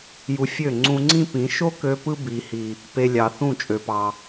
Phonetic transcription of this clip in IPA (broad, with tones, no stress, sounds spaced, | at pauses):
j u˧ fʲ ø˦˨ ŋ͡ǀ ũ˧ ŋ͡ǀ ĩ˦ p ĩ˨˦ ʃ o˦ k ø˧ p ɯ˧ b i˨ h i˨ | p e˧ lʲ ɑ˨ θ ũ˦˨ t͡ʃʼ ø˨ p ɑ˨